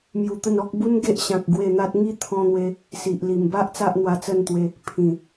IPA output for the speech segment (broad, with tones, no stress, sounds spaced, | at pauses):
m j u˧ t̪ ə˥˧ n ɔ˦ k̚ b u˦ n ɡ e˦ ʔ ɕ ã˨ k̚ ɡ w e˥˧ n̪ a˦ t̚ ŋ i˥˧ t̪ʰ ɔ̃˧ n̪ w e˧ | s i˨ ʔ l i˨˩ m b a˦ ʔ t͡s a˦ ʔ n̪ w a˧ t͡s ə˥˧ n t̪ w e˧ | pʰ ĩ˨˩